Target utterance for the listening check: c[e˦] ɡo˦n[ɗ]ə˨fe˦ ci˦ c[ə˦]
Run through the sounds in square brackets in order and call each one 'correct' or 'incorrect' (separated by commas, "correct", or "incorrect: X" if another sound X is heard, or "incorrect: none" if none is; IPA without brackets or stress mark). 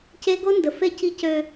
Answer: correct, incorrect: d, incorrect: ø˦